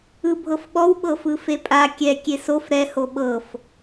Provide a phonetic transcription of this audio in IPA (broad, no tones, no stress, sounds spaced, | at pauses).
ɯ bʱ ɤ f ɓ ɔ w ɓ ɤ f ɯ f e pʼ a kʲ ɛ kʲ e s o f ɾ ɛ h o ɓ ɤ f